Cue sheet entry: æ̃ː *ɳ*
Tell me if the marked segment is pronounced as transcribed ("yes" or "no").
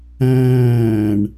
yes